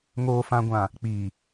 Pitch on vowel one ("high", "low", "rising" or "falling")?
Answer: low